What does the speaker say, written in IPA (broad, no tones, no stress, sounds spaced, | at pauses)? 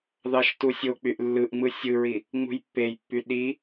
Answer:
ð ɑ ʃ t u sʲ o k͡p y ʔ lː ɯ ʔ ŋ͡m ɯ sʲ ɯ ɹ i | ŋ͡m ṳ j pː e j pː y ɗ i